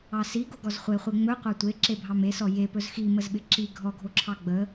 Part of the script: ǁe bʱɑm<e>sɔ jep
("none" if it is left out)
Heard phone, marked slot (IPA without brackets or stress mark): e